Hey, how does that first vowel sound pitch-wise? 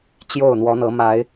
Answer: falling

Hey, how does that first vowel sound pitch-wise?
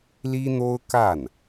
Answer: high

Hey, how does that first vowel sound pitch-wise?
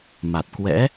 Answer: low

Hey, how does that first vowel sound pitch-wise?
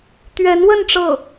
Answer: rising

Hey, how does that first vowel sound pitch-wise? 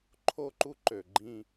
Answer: high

